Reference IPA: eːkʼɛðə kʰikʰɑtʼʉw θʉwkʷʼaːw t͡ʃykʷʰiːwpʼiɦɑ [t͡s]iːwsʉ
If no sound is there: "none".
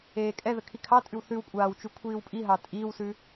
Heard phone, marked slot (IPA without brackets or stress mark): tʼ